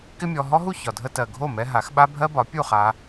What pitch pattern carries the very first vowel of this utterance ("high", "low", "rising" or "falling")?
high